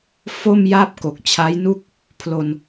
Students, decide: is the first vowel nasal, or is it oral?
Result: oral